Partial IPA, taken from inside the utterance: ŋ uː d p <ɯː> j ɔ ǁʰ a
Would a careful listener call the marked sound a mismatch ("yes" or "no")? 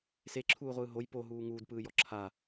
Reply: no